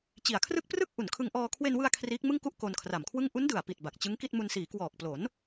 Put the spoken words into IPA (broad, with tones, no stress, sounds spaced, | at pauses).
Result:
t͡ɕ i˨˩ a̯ kʰ r ɯ˥˩ k̚ p r ɯ˥˩ k̚ ʔ u˨˩ n kʰ ɯ˧ ŋ ʔ ɔː˧ kʰ w e˧ n w ɯ˧ a̯ kʰ r iː˦˥ k̚ m ɯ˥˩ ŋ k u˥˩ ʔ k o˧ n kʰ r a˨˩ m kʰ w ɯ˥˩ ŋ ʔ u˦˥ n d ɯ˨˩ a̯ p i˨˩ t̚ b a˨˩ k̚ t͡ɕ ɯ˦˥ ŋ k i˥˩ t̚ m u˧ n s iː˩˦ k w ɔː˨˩ k̚ p l o˩˦ n